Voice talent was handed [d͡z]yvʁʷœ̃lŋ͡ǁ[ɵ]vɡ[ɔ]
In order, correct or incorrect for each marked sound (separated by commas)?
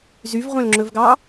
incorrect, correct, incorrect